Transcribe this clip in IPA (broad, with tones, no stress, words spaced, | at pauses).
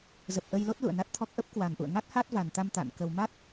zə˨˩p̚ʔə˧jlo˦˥t̚ lṵ˧˨ə̯na˦˥t̚t̪ʰɔ˦˥k̚ ʔə˦˥p̚kwa˨˩nʔṵ˧˨ə̯ ŋa˦˥t̚ha˦˥t̚va˨˩nt̪a˧m t̪a̰˧˨nkə˧w ma˦˥t̚